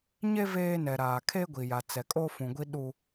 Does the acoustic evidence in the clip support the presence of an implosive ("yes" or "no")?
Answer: yes